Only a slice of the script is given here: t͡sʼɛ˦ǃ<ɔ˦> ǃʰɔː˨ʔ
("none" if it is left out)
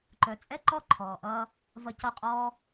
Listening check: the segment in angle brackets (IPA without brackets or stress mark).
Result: ɔ˦